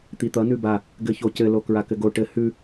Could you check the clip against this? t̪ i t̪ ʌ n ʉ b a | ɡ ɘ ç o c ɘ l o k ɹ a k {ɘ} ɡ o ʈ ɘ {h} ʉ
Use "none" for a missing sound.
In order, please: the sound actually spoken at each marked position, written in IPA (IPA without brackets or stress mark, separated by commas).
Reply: ɘ, h